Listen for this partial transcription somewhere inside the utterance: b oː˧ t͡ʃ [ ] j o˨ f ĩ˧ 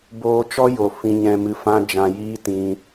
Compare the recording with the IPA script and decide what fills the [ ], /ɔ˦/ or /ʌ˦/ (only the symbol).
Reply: ɔ˦